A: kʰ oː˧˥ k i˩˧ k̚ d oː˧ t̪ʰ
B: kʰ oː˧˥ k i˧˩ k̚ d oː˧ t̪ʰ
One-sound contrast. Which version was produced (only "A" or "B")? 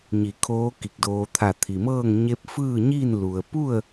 B